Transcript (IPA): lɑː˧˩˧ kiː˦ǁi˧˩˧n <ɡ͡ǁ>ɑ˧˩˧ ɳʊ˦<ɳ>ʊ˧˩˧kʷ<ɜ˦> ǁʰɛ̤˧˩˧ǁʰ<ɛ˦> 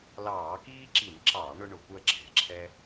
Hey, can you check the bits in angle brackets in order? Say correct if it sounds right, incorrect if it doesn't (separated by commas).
incorrect, correct, correct, correct